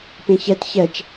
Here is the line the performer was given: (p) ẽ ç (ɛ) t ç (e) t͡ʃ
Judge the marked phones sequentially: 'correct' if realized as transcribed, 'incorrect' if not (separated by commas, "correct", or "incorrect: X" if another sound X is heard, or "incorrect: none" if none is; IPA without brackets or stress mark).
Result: correct, correct, incorrect: ɛ